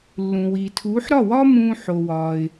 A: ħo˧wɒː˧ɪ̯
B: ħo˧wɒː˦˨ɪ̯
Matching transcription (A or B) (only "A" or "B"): A